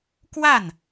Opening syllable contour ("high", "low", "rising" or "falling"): falling